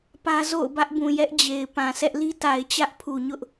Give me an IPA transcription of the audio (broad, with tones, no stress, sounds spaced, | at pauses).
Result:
p ä˦ z o̰˦˨ ʊ̯ b ä˦ ʔ b ũ˨ j ɛ˦ ʔ d͡ʑ e˨ ɪ̯ p ã˨ s ɛ˦ ʔ l i˦ t a˨ ɪ̯ t͡ɕ ä˦ ʔ pʰ u˨ ɲ ʊ˦ ʔ